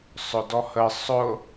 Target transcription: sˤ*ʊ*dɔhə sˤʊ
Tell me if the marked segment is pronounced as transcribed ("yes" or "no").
yes